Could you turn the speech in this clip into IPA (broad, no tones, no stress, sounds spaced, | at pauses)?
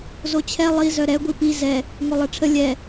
z o t͡ɕʰ ɛ lˠ i z œ ɾ ɛ ɡʷ i p i z ɛ | ŋ o lˠ ɛ ʈ͡ʂʰ ə lʲ ɛ